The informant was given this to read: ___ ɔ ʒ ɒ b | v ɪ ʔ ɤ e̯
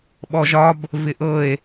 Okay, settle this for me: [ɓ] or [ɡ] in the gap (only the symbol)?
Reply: ɓ